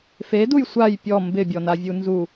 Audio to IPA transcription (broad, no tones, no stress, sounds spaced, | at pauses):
f e d u j sʷ a j pʲ ɔ m b ɪ bʲ ɔ n a vʲ u n z u